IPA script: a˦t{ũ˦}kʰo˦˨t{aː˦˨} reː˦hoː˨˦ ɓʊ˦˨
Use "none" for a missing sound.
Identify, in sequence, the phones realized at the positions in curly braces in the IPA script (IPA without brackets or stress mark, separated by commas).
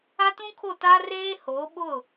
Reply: ũ˦, aː˦